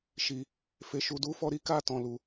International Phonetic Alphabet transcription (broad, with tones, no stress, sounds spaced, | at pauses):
ʃ i˨ | f e˨ ʃ u˨ d u˨˦ f ɔ˧ ɾ i˦ k a˦˨ t ɔ̃˨ l u˨